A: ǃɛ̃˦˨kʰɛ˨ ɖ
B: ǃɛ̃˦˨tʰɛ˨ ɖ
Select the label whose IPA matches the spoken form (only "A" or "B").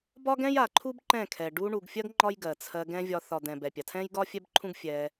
A